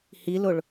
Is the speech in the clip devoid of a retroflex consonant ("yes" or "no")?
no